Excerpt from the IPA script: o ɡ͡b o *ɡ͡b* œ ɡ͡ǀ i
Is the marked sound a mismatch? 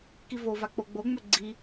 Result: yes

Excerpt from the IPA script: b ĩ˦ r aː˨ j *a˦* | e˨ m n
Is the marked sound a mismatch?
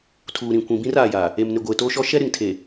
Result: yes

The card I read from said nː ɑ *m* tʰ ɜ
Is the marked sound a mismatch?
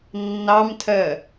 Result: no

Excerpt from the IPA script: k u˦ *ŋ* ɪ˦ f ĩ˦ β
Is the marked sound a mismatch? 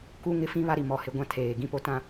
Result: no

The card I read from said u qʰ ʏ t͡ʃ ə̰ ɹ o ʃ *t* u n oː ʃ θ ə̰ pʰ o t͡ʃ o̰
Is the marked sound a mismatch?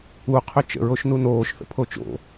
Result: yes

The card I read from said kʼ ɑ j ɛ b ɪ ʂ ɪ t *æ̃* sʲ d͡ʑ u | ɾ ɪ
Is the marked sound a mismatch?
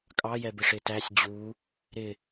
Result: yes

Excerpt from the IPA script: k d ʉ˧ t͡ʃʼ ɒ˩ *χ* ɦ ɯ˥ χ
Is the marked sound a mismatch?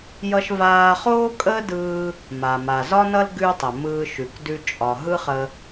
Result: yes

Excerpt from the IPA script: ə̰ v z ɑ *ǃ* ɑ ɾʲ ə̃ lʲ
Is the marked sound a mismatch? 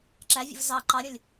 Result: no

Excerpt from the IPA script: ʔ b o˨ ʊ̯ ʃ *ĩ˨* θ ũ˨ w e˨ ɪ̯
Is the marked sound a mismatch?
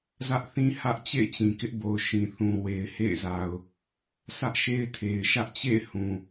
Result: no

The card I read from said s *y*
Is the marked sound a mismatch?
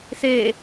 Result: yes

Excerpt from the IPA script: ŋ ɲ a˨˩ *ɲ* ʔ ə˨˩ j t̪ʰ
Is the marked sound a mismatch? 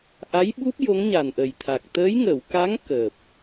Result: yes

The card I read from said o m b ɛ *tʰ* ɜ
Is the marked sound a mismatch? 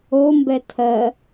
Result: no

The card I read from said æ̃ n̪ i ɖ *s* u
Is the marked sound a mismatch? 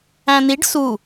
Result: no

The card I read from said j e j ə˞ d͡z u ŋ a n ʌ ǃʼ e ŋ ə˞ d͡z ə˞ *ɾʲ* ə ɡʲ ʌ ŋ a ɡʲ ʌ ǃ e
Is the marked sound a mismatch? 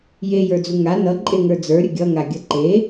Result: no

